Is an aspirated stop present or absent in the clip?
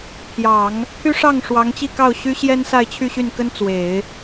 present